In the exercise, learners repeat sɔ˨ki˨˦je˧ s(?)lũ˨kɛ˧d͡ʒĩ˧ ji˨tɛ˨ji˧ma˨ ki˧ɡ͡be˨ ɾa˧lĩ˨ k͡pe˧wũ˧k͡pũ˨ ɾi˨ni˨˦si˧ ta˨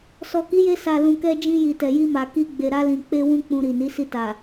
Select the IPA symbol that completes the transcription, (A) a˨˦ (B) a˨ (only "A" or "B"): B